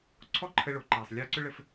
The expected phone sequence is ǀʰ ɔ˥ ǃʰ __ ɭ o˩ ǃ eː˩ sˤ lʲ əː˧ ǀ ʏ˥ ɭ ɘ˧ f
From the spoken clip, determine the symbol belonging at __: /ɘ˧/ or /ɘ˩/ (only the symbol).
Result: ɘ˧